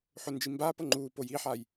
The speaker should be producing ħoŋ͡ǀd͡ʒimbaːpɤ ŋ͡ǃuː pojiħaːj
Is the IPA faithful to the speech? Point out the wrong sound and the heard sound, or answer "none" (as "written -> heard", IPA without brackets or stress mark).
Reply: ŋ͡ǀ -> n